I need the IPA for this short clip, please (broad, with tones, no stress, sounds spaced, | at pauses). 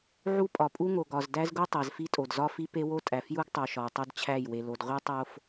ʕ u˦ pʼ ɒ˨ pʼ u˦ ŋ o˨ ɡ ɒ˨ z d æ˦ z ɡ u˦ tˤ æ˨ z f i˦ tʼ o˨ d z ɒ˦ f i˦ p e˦ w o˦ tʼ æ˨ f j u˦ ɡ tˤ o˨ ʃ ɒ˨ w tˤ o˦ d t͡ɕʰ æ˦˨ j w e˨ l o˨ d ʁʷ i˦ tˤ o˦ f